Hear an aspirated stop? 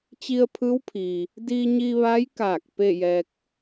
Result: yes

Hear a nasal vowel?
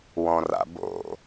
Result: yes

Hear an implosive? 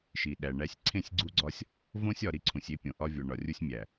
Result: yes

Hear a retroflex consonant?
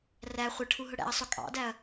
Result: yes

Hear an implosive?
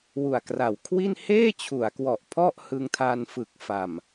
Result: no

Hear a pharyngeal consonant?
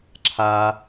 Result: no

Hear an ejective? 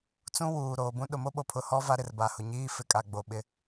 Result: yes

